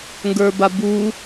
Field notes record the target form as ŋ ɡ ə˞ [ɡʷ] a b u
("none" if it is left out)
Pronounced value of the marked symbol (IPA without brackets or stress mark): b